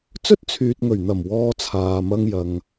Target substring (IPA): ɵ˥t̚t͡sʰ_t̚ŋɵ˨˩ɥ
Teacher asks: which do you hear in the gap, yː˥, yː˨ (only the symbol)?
yː˨